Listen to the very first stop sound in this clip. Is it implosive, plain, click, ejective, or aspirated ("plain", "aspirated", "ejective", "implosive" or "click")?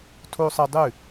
aspirated